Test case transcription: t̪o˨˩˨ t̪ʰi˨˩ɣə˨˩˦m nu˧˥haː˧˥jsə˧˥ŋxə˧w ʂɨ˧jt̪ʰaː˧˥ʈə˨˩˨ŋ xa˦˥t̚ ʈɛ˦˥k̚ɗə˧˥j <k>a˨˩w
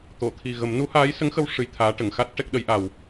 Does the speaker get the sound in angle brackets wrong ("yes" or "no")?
yes